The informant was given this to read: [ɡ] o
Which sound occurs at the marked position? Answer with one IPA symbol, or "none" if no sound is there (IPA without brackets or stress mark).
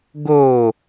ɡ